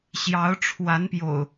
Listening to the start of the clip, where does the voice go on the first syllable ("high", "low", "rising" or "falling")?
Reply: rising